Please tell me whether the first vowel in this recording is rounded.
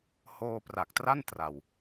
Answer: yes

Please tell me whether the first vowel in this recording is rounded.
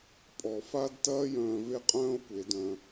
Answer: yes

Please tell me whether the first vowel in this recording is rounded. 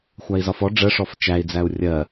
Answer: no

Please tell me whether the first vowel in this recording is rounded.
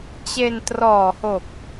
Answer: no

